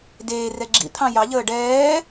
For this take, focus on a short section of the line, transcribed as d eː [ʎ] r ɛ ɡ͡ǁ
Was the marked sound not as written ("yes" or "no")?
yes